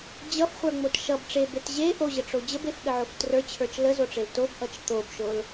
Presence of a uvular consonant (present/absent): present